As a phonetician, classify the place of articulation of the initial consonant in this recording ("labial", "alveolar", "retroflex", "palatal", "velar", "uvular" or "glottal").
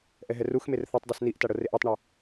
glottal